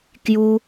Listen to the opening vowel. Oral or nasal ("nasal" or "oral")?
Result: oral